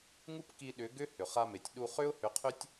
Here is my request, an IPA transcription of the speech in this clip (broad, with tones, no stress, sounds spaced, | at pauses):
ŋ u˦ p k i˧ ɗ ʏ˨˦ ɡ ʏ˦ h ʏ˨ χ a˧ m e˨ tʲ ɗ u˧ χ ʏ˦ ʊ̯ h ʏ˨˦ qʰ ʏ˦ tʲ